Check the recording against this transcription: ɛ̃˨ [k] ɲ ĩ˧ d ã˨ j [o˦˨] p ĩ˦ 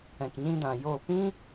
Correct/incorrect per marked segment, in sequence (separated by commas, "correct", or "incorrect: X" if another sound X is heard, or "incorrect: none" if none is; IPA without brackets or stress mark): correct, correct